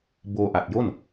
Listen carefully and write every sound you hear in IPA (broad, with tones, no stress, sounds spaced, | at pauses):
b oː˧ ʔ a˨˩ t̚ j o˥˩ n